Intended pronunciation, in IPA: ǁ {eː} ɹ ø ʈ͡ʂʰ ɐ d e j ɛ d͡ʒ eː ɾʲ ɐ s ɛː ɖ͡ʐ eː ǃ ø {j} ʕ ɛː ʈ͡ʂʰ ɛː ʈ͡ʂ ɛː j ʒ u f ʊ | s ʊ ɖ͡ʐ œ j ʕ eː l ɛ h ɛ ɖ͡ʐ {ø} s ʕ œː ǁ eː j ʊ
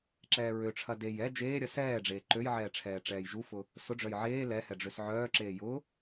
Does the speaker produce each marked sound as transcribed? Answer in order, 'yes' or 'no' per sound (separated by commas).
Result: no, yes, yes